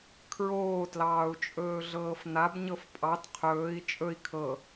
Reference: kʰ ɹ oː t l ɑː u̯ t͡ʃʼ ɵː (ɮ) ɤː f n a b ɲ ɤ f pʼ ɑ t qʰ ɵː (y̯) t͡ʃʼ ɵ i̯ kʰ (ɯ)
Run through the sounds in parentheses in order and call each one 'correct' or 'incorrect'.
correct, incorrect: i̯, incorrect: ɤ

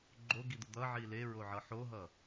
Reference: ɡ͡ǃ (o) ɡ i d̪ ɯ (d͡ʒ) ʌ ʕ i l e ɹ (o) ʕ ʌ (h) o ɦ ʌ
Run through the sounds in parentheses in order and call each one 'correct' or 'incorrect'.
correct, incorrect: d̪, correct, incorrect: ħ

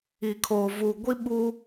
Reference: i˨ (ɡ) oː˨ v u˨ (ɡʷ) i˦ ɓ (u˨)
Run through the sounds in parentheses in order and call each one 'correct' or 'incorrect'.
incorrect: kʰ, correct, incorrect: u˦

